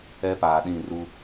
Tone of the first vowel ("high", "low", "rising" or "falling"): high